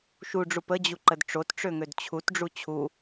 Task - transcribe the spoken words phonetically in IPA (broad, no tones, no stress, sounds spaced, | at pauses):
ʃ u ɖ͡ʐ u p ə d͡ʑ u ǃ ə d ʈ͡ʂ o t ʈ͡ʂ ø ŋ ø d t͡ɕʰ u t ɖ͡ʐ u t͡ɕʰ u